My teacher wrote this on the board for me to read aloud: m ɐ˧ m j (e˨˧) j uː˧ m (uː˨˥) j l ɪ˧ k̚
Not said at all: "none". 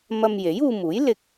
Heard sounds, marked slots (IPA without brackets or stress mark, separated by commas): e˨˥, uː˨˥